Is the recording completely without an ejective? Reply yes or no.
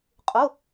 no